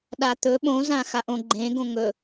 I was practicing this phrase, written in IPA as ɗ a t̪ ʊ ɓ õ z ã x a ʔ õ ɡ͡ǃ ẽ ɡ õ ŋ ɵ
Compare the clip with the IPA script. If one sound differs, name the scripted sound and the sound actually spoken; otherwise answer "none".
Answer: ʊ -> ɵ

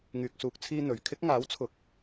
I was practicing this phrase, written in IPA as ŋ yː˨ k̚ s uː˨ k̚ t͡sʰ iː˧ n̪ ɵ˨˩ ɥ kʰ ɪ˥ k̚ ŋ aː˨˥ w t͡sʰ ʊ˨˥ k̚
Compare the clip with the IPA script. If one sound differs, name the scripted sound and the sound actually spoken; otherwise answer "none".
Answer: none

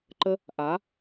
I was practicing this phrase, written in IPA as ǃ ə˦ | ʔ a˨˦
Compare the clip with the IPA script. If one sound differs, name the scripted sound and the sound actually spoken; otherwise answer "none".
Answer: none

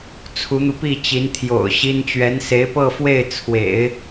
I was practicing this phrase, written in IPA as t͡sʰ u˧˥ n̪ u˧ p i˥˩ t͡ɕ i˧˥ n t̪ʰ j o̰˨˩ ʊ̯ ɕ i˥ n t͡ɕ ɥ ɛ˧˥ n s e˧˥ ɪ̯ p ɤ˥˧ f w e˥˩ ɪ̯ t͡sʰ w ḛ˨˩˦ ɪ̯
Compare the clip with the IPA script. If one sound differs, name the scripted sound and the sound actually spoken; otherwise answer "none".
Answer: none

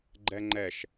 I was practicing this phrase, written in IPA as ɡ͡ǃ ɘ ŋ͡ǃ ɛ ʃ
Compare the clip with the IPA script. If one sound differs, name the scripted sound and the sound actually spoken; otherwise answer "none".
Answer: ɘ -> ɛ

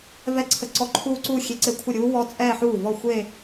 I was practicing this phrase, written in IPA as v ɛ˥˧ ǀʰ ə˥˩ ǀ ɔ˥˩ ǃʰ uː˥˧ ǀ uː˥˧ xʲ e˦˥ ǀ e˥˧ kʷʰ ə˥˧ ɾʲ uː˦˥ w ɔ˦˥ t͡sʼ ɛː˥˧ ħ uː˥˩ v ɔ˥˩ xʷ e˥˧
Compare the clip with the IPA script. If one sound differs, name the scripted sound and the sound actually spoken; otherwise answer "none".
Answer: none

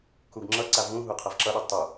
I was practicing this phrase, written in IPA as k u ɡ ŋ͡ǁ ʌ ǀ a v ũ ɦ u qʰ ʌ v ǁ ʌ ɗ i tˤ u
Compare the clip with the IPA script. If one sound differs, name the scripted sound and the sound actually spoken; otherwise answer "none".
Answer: none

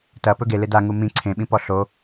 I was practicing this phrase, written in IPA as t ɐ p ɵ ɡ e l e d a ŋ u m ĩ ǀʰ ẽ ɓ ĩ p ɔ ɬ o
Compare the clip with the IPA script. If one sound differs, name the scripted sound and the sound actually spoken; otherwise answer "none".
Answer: none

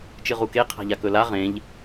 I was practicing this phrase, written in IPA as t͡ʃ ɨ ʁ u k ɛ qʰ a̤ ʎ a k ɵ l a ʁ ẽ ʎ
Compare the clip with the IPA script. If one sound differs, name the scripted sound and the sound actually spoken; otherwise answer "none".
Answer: ɛ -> e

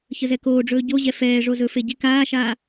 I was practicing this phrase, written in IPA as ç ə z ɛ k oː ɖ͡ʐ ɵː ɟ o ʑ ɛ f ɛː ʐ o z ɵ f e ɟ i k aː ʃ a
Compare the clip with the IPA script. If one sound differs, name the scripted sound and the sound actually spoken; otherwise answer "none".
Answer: a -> aː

